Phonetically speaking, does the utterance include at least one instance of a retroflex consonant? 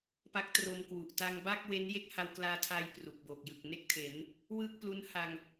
no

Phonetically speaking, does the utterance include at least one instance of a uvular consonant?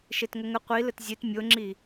yes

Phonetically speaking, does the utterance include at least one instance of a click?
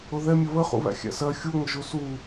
no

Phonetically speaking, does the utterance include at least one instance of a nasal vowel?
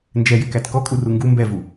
no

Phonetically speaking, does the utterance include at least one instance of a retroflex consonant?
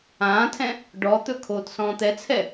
yes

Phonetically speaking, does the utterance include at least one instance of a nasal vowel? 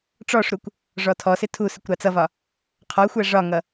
no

